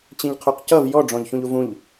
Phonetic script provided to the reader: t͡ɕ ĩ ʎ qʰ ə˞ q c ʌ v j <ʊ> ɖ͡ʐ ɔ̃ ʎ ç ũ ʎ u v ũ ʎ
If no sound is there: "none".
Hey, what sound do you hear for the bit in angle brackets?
ɔ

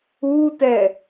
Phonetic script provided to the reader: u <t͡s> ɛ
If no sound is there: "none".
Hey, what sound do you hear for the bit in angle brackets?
t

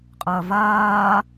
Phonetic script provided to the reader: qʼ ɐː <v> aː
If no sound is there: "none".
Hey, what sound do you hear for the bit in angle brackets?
v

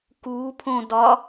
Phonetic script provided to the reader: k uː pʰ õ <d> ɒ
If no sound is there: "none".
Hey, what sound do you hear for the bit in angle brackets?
d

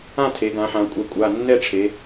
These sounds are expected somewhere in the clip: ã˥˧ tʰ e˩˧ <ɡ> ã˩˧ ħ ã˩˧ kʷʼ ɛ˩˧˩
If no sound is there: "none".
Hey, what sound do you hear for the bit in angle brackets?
ɡ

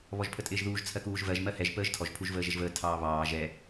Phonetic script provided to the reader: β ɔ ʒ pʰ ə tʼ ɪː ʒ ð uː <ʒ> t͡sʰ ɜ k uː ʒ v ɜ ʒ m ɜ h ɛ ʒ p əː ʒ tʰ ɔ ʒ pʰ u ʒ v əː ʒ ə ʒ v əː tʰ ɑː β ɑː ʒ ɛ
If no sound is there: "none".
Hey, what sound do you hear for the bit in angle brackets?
ʒ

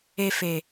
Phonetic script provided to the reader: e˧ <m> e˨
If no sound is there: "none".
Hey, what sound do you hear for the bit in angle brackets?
f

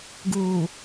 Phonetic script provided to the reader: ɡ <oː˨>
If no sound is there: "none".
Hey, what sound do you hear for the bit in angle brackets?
uː˨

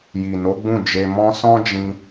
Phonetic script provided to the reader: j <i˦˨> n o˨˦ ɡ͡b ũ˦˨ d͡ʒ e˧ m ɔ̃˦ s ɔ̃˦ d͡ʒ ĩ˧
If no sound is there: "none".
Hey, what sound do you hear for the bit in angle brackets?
i˨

